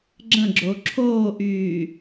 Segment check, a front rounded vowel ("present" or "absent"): present